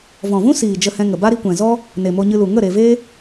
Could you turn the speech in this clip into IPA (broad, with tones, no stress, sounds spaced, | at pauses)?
v ɔ̃˨ v ũ˦ s iː˨ d͡ʒ ə˧ h ɛ̃˧ ŋ ə˨ b a˦ ɾ i˧ kʷ ɛ̃˨ z ɔ˦ | n e˨ m o˧ ɲ ɨ˧ l u˨ ŋ ə˦˨ ɾ e˨ v e˦